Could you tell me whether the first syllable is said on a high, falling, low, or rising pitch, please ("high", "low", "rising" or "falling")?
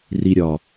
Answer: low